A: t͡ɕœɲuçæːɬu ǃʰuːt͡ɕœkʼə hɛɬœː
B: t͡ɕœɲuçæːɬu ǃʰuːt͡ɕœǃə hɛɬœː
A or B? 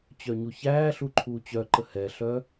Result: B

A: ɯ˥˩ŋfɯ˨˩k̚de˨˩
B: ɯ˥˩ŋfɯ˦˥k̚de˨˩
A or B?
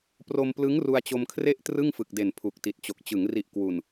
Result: A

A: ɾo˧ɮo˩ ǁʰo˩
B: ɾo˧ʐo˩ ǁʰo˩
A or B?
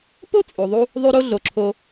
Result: A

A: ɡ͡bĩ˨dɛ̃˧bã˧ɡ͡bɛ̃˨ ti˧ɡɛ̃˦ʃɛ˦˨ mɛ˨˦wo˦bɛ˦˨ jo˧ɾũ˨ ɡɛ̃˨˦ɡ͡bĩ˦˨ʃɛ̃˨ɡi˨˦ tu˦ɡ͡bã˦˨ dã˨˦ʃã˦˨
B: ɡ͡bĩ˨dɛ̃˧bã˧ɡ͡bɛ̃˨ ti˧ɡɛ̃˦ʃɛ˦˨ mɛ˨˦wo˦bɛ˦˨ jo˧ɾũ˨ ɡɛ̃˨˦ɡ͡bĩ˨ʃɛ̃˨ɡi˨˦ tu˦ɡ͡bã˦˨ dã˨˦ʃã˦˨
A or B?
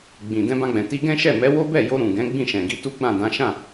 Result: A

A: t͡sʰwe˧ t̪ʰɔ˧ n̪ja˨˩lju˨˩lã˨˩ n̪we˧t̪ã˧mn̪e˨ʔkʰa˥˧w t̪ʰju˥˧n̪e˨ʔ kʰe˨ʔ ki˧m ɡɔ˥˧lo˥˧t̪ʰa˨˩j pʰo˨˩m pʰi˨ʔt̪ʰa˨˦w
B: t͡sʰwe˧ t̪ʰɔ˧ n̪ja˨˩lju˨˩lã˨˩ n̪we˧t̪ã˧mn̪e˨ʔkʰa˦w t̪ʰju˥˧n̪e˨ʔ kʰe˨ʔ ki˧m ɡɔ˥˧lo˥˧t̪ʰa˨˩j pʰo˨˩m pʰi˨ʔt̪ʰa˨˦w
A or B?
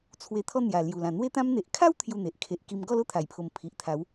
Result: B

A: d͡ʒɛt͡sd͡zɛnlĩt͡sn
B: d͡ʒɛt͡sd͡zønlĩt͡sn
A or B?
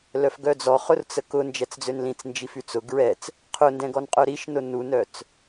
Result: B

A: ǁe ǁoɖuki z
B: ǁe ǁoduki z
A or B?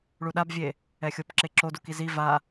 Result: B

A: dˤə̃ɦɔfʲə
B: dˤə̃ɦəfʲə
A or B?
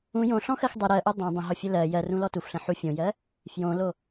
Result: A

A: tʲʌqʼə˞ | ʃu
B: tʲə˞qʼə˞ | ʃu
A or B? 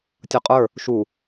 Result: A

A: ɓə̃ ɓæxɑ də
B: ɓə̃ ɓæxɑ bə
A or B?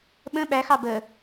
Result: B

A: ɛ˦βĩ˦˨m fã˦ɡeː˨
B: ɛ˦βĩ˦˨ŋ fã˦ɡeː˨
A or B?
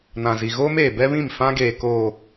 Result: A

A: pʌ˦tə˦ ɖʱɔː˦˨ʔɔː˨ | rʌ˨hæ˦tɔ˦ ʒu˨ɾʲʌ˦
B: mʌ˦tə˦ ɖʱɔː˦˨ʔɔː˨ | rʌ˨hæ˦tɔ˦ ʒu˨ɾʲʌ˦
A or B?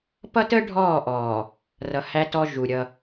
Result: A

